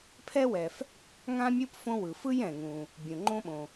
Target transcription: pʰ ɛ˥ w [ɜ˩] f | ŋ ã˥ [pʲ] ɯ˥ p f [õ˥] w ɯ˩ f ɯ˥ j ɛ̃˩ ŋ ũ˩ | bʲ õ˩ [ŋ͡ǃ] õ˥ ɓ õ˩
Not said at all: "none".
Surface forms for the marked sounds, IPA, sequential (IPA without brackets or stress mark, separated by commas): ɛ˩, mʲ, õ˥, ŋ͡ǃ